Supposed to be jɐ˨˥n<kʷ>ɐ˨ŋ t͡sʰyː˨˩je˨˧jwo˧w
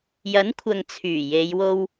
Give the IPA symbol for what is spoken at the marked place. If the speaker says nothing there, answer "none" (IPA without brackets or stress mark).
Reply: kʷʰ